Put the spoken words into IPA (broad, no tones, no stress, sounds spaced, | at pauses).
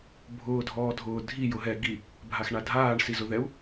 bʱ ʊː dʱ ɔː dʱ ʊː dʱ i j ʊ ɦ ɛ ɡ i | bʱ a x ɳ a dʱ aː ɳ s i z ʊ ð ɛ u̯